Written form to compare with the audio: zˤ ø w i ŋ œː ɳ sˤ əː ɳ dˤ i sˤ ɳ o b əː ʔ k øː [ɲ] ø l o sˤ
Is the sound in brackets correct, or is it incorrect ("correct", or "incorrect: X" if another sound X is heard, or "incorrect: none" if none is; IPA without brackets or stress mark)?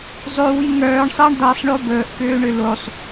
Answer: incorrect: ɳ